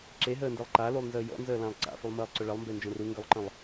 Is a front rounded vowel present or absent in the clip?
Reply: present